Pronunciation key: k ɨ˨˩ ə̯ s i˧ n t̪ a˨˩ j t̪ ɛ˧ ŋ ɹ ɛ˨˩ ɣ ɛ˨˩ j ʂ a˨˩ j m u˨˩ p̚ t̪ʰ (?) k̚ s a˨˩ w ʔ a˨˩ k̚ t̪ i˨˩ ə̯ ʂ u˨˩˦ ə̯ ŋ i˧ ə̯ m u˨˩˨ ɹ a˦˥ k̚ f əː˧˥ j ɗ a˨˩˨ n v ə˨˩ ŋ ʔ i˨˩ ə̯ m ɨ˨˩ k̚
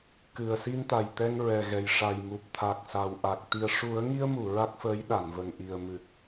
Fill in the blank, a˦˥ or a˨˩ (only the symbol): a˨˩